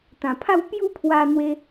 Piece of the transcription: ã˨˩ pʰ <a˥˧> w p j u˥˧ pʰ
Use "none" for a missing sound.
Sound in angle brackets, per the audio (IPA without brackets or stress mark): a˥˧